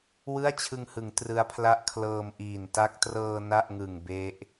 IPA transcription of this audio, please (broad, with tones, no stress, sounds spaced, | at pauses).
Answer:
w ɯ˥˩ a̯ t͡ɕʰ ɯ˧ ŋ h ɯ˩˦ ŋ t r ɯ˦˥ a̯ pʰ l a˥˩ ʔ kʰ l ɤː˧ m ʔ iː˨˩ n t a˦˥ k̚ t r ɤː˧ n a˥˩ ʔ ŋ ɯ˨˩ ŋ b e˦˥ ʔ